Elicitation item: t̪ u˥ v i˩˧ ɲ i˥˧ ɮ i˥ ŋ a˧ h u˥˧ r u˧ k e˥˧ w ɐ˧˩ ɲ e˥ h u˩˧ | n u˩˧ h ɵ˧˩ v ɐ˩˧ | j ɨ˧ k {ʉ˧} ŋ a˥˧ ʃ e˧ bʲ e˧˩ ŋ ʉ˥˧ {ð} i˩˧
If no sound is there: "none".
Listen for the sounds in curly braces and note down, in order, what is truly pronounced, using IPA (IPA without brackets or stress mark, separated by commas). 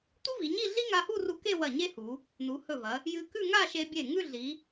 ʉ˥˧, ɮ